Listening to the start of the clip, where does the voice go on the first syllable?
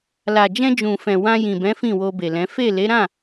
low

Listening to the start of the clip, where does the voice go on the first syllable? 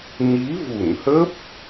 rising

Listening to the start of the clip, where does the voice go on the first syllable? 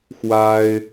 high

